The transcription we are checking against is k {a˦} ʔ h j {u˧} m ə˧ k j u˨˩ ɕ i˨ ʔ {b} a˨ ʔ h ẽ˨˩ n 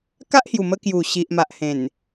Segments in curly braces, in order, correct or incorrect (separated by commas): correct, incorrect, incorrect